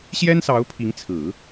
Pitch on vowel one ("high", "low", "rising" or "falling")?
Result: high